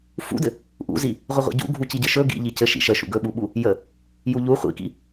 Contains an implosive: yes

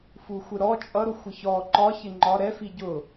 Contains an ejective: yes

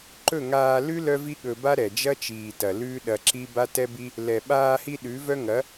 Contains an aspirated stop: no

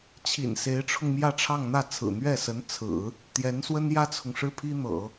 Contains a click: no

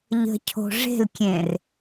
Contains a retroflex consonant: yes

